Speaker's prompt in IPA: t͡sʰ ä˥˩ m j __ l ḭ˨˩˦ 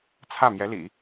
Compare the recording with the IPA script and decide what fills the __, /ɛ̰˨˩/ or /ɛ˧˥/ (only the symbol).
ɛ˧˥